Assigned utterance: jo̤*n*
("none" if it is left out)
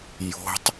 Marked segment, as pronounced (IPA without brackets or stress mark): tˤ